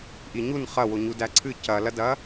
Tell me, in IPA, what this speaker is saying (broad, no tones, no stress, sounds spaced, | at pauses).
ʔ i ɲ u n χ ɐ w o ɲ u d æ ǀʰ ɨ c ɐ l ɐ d ɐ